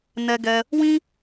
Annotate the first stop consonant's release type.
plain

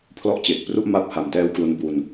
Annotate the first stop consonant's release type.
aspirated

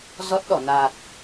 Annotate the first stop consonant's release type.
plain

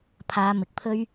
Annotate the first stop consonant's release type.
aspirated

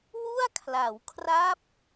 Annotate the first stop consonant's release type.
aspirated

